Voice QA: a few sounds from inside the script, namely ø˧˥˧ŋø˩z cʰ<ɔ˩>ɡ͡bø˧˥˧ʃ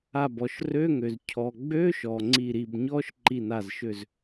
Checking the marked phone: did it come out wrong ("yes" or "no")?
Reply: no